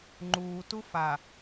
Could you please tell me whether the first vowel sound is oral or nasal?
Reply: oral